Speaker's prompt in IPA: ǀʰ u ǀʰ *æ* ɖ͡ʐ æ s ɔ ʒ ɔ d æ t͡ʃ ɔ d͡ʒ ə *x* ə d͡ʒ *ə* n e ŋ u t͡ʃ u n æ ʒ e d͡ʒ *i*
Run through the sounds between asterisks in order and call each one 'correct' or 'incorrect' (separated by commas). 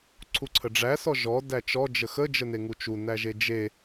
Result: incorrect, correct, correct, incorrect